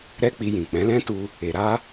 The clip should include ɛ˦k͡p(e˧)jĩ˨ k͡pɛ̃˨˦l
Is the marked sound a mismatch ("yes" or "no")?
yes